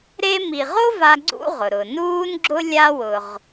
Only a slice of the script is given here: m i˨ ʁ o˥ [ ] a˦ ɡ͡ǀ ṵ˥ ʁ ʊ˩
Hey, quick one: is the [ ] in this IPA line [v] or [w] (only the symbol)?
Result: v